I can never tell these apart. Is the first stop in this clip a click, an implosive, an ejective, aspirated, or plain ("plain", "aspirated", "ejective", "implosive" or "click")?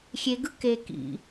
plain